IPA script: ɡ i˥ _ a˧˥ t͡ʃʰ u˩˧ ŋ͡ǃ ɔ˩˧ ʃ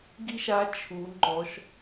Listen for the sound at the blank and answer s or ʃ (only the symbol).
ʃ